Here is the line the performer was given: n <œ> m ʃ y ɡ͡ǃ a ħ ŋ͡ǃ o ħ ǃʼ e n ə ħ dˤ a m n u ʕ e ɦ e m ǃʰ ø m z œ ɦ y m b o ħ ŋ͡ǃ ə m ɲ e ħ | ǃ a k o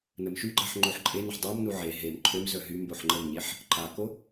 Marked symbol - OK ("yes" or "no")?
no